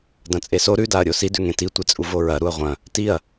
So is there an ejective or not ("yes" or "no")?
yes